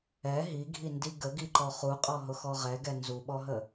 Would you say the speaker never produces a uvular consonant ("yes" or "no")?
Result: no